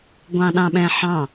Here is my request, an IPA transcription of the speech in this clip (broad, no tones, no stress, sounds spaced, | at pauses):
ɡʷ ɑ̃ ɗ ɑ̃ ɓ ɛ̃ ħ ɑ̃